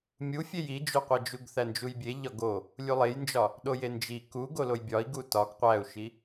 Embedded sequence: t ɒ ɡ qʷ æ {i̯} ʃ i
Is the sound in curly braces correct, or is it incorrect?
incorrect